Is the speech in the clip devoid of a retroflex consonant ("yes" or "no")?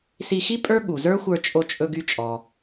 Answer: yes